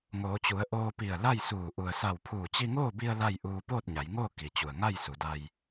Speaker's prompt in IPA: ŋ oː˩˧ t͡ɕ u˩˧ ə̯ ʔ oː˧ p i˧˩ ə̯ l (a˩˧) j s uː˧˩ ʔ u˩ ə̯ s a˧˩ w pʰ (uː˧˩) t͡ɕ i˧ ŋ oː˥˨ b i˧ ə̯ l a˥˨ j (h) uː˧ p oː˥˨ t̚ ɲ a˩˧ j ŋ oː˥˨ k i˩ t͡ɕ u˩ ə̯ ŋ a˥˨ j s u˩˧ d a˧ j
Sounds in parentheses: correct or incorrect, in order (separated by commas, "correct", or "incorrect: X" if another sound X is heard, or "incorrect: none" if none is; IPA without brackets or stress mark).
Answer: incorrect: a˥˨, correct, incorrect: ʔ